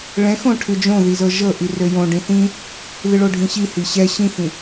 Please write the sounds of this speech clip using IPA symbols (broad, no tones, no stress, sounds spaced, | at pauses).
ɭ ɛ̃ x õ ʈʰ ɨ d͡ʒ õ ð i z ɤ ʒ ɤ ʔ i r ø j õ ɖ ĩ θ ĩ | ð ɨ ɭ o ɖʱ ĩ ɕ i h i ɕ ɛ ɕ ĩ x ĩ